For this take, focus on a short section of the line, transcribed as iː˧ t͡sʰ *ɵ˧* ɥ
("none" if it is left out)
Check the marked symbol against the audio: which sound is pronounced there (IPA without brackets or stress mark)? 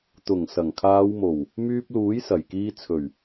ɵ˨˩